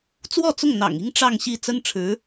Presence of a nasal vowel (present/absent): absent